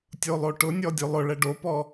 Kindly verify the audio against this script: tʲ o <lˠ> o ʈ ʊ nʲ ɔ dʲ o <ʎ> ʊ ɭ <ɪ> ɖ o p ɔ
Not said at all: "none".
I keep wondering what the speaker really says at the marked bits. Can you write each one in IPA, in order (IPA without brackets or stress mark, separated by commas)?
lˠ, lˠ, ɛ